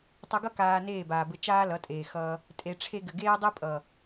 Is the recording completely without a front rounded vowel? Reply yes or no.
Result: yes